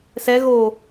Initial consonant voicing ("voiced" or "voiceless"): voiceless